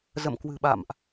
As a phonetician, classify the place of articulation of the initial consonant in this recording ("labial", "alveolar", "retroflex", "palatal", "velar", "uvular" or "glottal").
alveolar